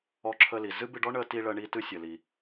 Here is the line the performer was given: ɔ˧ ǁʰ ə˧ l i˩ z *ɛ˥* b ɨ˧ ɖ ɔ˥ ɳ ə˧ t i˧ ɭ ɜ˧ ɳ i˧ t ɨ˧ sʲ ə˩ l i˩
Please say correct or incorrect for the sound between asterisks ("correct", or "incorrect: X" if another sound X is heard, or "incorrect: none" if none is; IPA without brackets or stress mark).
incorrect: ɨ˥